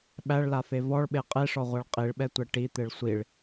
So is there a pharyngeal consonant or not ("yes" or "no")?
no